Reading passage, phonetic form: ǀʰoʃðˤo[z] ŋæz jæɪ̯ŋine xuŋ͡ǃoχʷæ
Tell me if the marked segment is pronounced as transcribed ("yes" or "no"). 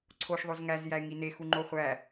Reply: yes